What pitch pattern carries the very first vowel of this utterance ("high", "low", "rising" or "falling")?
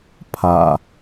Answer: low